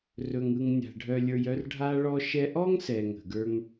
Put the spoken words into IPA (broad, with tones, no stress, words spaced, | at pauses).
rɵ˧ŋɯ˧ŋ nʲa̤˨ɖʱœ˧lʲə˞˧j œ˦r ɖʱa˦ɭɔ˦ʃɛ˦ ʔɔ˦ŋsɛ˨ ŋə̤˨ɡə˞˦ŋ